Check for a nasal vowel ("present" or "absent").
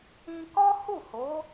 present